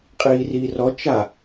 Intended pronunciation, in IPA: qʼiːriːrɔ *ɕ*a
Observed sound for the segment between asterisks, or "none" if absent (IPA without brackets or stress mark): t͡ʃ